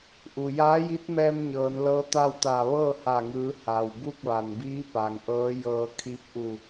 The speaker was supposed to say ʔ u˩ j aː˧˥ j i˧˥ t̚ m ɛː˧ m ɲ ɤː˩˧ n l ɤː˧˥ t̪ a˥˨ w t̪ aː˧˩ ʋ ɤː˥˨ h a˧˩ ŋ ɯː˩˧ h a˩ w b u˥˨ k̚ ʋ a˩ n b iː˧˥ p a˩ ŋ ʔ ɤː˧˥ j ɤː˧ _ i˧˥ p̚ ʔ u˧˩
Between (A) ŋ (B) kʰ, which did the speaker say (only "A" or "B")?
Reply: B